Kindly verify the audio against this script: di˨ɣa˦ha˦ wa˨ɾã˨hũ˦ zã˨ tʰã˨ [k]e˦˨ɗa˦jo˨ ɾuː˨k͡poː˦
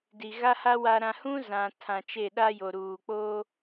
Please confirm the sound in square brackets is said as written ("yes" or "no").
no